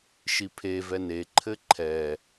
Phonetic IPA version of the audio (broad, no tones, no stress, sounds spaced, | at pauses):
ʃ i pʰ e v ɛ n e ǃʰ ɘ ǃʰ ɛ